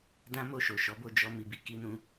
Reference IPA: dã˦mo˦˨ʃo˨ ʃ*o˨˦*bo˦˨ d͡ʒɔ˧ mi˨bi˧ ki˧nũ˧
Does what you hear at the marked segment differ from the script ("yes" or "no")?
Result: yes